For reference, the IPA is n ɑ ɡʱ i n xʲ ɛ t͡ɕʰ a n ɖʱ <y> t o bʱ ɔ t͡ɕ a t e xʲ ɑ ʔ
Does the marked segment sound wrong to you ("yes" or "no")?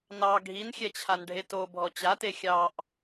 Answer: yes